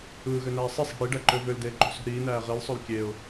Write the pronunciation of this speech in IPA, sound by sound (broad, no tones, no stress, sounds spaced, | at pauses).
ɯː ɣ ø n æː sˤ i sˤ e̤ ɽ i ɖ æ ǃ ø v ø l d eː ǃ ṳ s ṳ ɾ iː n æː ʁ i l sˤ o l kʲ e ʊ̯